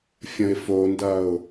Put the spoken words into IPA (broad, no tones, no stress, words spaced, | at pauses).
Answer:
fʲə̃ɪ̯fondɐʊ̯